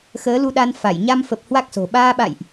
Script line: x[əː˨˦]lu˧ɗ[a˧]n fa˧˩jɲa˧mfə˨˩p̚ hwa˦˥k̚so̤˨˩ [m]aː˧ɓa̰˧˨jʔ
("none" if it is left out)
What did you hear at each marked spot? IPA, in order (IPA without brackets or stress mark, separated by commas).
əː˨˦, a˧, ɓ